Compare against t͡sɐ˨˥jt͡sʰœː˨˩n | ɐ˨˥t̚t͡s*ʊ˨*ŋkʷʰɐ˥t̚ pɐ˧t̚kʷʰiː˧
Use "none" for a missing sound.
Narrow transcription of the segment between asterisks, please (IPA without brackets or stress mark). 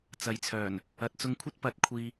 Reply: ʊ˧